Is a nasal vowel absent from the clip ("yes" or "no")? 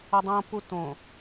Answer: no